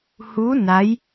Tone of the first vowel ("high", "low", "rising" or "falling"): rising